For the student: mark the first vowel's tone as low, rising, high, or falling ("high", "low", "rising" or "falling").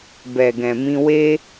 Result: low